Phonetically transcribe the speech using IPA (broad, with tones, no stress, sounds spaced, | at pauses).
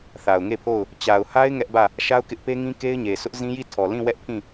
θ a˨ ʊ̯ ŋ e˦˨ pʰ o˦˨ ʊ̯ | t͡ɕ a˨ ʊ̯ h a˦ ɪ̯ ŋ ɛ˦ ʔ b ä˦˨ | ʃ a˦ ʊ̯ k ɪ˦ ʔ p e˦ ŋ ĩ˦ k e˦ ɪ̯ ɲ e˨ sʰ ʊ˦ ʔ z ĩ˦ j i˦˨ tʰ ɔ˨ l ĩ˦˨ w ɛ˦ ʔ pʰ ĩ˦˨